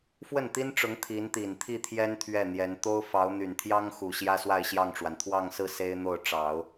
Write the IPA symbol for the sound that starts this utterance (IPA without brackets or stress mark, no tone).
f